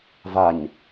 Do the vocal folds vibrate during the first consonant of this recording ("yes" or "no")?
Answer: yes